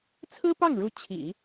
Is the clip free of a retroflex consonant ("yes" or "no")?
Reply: no